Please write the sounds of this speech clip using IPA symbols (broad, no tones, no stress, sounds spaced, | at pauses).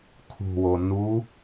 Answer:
kʰ ṳ w o n u